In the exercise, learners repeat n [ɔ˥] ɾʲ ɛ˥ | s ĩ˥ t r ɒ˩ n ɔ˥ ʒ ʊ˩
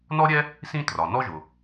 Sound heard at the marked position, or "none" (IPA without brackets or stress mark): ɔ˥